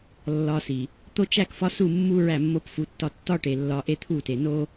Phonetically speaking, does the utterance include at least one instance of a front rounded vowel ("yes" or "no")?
no